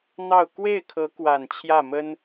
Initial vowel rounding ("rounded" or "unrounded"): unrounded